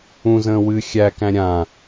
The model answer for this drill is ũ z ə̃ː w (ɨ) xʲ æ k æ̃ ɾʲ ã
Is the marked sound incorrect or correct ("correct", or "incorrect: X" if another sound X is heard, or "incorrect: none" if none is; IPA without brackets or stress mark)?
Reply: correct